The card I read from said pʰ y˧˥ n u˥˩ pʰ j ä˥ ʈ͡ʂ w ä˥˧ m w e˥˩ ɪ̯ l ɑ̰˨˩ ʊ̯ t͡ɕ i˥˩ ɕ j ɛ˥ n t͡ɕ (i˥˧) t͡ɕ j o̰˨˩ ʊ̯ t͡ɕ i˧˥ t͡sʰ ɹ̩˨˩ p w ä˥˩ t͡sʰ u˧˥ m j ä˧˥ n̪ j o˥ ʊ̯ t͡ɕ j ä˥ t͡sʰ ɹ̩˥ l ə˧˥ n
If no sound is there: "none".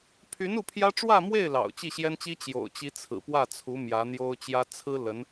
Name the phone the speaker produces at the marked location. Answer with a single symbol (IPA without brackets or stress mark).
i˥